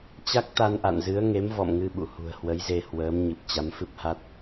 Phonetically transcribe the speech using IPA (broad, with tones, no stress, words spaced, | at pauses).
t͡ɕa˦˥k̚t̪a˧n ʔa̰˧˨nzɨ˨˦ə̯ ŋe˨˦mvɔ̰˧˨mŋɨ˧ ɓṵ˧˨hṳ˨˩ə̯ hwə˨˦jze˧hwəː˨˦m ɲɨ˨˩p̚t͡ɕa˨˦mfɨ˦˥p̚ha˦˥t̚